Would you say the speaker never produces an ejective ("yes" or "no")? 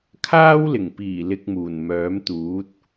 yes